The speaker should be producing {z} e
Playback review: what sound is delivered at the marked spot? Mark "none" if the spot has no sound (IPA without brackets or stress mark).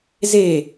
z